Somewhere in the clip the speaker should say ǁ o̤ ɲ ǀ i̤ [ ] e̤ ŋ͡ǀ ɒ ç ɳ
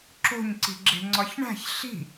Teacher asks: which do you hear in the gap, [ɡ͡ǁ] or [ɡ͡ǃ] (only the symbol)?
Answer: ɡ͡ǁ